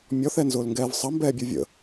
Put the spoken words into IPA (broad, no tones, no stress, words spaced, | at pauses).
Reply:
mʲɔθɛnzʊːlŋɡɛːv sˤʌmbɛːbʲu vʲə̰